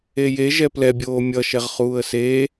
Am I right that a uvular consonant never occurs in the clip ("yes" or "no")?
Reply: no